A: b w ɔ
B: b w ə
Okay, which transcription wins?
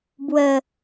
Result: B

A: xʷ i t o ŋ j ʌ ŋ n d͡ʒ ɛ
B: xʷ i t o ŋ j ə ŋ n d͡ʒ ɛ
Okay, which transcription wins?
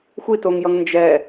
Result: A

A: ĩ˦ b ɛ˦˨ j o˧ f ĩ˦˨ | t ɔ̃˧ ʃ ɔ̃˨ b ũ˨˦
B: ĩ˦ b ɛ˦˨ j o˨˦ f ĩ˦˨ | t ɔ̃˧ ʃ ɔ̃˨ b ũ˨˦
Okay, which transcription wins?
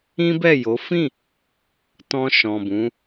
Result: B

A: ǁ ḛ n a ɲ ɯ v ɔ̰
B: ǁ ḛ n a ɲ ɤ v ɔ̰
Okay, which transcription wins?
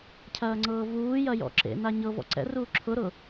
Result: B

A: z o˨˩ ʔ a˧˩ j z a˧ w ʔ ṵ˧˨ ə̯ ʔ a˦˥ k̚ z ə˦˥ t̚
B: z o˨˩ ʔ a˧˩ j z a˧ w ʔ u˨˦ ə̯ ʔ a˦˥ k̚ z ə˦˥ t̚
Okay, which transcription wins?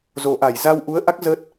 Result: B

